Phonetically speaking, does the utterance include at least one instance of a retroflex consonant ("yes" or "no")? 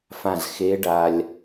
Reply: yes